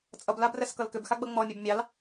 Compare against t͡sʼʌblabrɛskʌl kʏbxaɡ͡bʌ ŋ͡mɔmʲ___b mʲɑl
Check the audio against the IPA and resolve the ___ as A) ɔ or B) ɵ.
B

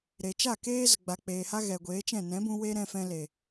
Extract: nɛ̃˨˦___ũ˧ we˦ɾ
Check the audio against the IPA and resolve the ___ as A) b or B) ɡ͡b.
A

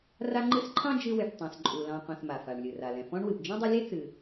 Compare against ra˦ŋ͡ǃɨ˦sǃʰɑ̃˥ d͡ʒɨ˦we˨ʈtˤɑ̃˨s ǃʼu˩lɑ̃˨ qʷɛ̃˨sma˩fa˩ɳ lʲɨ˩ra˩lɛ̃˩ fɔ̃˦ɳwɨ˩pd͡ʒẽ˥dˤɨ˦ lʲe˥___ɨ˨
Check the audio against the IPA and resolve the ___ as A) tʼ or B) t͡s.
B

